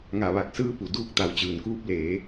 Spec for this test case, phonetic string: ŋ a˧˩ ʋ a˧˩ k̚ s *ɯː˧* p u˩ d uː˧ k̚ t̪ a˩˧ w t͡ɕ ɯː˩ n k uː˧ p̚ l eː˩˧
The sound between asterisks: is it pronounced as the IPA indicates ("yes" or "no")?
yes